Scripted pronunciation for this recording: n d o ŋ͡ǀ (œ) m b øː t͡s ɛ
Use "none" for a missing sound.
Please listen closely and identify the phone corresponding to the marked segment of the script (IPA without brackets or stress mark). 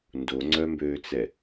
œ